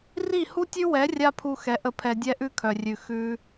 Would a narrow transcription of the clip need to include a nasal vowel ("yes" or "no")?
no